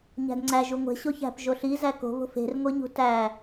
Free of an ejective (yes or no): yes